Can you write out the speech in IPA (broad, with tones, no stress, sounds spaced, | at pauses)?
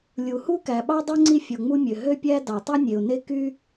lʲ u˩ h u˥ k æ˩ ɓ ɑ˥ dˤ ø˥ ŋ͡ǀ i˥ fʲ o˩ ŋ͡m u˥ mʲ ø˩ ɦ ø˥ pʲ æ˥ d ɑ˩ tˤ u˥ nʲ e˩ ʊ̯ n e˥ k y˥